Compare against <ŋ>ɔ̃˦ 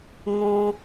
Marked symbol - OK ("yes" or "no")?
yes